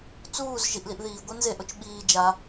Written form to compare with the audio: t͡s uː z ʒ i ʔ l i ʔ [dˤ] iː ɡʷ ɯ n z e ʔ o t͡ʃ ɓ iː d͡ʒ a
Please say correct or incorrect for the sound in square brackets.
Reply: incorrect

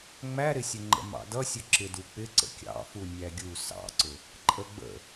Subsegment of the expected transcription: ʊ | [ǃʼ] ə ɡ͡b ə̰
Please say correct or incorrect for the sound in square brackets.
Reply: correct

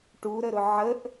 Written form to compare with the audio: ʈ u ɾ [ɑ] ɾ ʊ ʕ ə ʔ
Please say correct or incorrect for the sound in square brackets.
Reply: incorrect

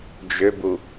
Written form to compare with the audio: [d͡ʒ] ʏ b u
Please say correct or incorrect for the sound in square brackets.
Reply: correct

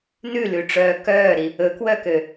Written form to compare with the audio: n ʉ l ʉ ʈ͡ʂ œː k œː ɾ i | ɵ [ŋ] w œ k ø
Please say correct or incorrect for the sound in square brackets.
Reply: incorrect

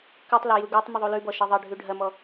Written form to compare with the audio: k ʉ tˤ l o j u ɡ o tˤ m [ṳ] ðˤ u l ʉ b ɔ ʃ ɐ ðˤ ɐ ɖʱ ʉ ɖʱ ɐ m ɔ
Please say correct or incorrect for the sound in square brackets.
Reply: incorrect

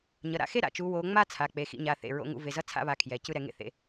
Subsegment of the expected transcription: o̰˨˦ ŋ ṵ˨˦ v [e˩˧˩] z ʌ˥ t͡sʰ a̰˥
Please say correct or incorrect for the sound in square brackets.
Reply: correct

